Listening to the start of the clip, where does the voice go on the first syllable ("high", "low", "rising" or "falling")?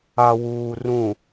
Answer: low